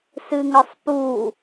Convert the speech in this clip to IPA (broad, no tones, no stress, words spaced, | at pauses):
sɨŋəsˤpu